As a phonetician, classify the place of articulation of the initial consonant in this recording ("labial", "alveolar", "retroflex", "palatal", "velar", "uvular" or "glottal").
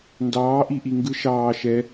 alveolar